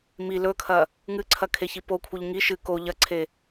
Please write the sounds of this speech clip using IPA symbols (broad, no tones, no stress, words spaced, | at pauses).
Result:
mi lɵkʰɐ | ŋɨǀʰɐkʰeçi pokʷʰɨʎ ŋi ʃɨ ko ʎɐǀʰe